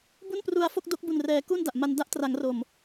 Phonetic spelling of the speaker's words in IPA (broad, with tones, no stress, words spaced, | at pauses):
bu˥˩npru˧a̯fo˥˩k̚ do˦˥k̚ bu˨˩nrɛː˩˦ ku˥˩nda˨˩ʔma˧n da˦˥ʔtra˩˦ŋro˨˩m